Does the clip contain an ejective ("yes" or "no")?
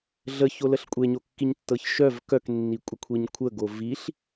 yes